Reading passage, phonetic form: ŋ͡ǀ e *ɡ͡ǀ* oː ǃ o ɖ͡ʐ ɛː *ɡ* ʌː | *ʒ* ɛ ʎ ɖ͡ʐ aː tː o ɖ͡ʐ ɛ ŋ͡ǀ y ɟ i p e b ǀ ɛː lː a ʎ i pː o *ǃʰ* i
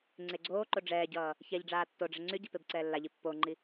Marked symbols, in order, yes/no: yes, no, no, no

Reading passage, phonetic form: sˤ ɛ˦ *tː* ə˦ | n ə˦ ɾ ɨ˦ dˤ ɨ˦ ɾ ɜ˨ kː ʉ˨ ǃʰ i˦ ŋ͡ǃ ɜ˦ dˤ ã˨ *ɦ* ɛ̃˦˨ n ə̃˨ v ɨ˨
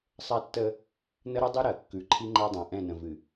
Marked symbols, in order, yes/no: yes, no

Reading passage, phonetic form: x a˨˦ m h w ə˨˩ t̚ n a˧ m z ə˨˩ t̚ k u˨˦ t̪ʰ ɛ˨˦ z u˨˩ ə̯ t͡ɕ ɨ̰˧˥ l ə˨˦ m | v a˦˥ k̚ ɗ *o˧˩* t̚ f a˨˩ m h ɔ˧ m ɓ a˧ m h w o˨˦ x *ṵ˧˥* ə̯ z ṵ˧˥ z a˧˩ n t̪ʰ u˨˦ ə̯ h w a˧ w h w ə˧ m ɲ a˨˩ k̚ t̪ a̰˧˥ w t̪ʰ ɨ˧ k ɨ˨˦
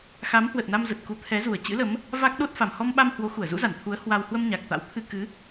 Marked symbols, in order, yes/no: no, no

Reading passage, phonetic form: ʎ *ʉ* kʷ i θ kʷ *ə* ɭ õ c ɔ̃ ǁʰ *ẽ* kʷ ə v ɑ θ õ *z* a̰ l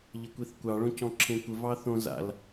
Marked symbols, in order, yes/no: no, no, yes, yes

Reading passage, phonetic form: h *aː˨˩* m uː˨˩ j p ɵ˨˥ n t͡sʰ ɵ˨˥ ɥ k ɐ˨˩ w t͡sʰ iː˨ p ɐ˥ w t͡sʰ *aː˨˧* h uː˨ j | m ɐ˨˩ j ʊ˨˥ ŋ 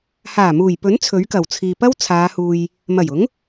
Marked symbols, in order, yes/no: yes, yes

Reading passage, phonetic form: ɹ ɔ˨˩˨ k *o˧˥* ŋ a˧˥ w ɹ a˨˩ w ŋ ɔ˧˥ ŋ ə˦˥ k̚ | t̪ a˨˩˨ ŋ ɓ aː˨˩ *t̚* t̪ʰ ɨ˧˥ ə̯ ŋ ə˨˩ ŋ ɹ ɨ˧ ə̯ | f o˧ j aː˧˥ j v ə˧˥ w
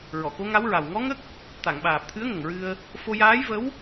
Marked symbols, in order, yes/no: yes, no

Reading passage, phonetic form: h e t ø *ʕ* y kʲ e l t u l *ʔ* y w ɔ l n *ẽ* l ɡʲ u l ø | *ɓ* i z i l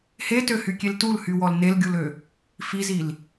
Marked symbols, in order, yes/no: no, no, no, no

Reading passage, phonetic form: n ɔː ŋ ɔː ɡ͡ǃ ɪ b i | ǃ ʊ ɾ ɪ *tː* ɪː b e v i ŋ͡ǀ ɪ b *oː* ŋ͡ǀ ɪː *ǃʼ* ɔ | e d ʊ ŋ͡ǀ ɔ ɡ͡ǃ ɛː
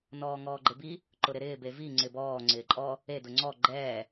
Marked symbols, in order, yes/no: no, no, yes

